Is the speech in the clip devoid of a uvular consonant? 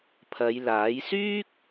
yes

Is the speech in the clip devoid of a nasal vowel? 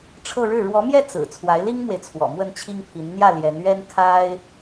yes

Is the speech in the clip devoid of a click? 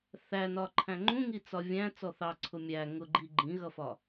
no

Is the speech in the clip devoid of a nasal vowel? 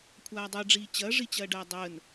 yes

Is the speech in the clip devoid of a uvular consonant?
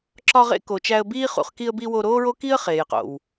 no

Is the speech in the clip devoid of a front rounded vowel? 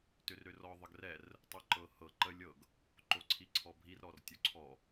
no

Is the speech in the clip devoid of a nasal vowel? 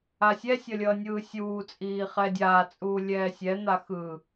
yes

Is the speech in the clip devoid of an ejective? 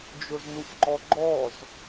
yes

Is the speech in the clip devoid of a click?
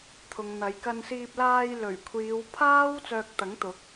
yes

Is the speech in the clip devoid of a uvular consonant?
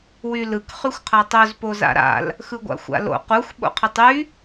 no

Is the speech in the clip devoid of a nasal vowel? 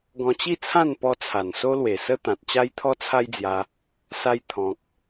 no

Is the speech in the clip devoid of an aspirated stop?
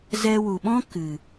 yes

